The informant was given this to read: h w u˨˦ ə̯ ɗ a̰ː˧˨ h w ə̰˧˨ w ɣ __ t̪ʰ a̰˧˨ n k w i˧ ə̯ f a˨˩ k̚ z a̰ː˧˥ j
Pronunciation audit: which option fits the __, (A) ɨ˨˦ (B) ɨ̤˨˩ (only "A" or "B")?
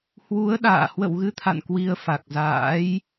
A